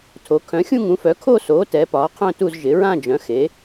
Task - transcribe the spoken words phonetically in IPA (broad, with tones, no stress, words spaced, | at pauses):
tʰo˩˥ kʰœ̃˩˥xʲũ˥˧ŋũ˩˥fœ˩˥ kʰo˥˧soː˩˥ tɛ˩˥pɒː˩˥qʰœ̃˥˧tu˥˧z ʒɪ˩˥ɹã˥˧d͡ʒœ̃˩˥ xe˩˥